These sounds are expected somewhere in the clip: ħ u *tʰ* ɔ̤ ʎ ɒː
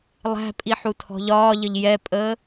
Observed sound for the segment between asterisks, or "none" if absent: tʰ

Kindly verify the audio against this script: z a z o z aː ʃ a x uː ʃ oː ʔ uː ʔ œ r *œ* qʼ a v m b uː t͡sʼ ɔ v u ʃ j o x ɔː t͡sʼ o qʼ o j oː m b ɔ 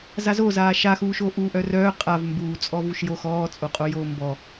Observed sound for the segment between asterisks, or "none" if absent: œː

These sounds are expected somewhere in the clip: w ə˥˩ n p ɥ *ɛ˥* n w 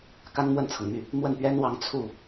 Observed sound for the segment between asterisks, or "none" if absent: ɛ˥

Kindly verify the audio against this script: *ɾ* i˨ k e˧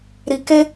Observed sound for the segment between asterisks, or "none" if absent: ɾ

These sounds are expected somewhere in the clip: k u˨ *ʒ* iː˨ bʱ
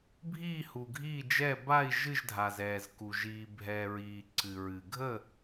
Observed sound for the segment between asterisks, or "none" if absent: ʒ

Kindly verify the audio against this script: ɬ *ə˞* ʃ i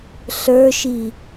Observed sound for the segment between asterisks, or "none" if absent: ə˞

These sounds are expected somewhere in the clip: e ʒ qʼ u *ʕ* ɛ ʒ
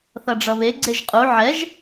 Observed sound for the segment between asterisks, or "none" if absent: ʕ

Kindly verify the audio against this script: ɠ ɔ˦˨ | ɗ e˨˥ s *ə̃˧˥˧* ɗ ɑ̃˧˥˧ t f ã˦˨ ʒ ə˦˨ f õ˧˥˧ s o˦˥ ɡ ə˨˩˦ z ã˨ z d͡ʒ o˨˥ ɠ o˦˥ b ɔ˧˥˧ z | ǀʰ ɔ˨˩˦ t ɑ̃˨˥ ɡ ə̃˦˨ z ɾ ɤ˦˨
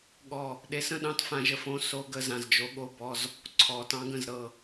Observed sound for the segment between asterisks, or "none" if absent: ə̃˦˥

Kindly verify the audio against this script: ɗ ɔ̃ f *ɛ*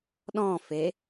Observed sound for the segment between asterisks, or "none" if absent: e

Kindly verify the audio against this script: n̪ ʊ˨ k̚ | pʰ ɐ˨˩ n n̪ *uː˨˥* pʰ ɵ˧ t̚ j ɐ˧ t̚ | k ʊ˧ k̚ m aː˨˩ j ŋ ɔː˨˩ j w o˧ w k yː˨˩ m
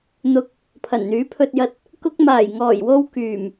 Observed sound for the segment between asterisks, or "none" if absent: yː˨˥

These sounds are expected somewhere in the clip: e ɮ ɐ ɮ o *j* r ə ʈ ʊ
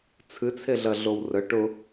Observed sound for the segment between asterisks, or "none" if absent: w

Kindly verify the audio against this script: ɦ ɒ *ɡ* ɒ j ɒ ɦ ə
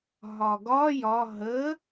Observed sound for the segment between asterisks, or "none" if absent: ɡ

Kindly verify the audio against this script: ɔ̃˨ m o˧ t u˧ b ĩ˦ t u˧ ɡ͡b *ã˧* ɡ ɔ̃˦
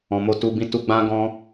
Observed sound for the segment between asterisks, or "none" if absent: ã˦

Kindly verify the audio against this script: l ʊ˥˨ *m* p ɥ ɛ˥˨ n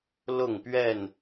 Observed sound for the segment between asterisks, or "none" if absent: ŋ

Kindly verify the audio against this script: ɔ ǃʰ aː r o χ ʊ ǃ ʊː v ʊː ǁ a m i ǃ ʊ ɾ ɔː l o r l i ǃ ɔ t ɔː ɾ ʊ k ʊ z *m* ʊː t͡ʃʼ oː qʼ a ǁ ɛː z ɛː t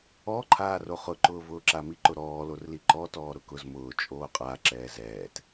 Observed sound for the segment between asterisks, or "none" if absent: m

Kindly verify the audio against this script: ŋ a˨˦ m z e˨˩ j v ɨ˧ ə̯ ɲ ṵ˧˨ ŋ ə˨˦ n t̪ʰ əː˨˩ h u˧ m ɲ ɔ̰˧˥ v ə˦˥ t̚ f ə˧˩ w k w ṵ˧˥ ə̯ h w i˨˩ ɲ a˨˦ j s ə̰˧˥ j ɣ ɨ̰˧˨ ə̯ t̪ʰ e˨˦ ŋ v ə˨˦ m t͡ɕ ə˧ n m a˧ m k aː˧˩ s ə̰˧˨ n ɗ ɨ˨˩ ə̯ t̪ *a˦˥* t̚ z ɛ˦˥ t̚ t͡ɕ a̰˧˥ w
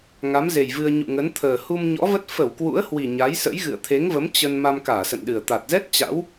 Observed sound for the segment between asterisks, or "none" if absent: a˨˩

